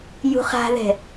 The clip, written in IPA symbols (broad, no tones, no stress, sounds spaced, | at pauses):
j ṳ χ a̤ ð ɛ̤